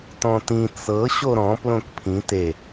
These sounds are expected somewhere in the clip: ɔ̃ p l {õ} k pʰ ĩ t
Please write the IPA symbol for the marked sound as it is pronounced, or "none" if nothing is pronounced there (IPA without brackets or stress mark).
õ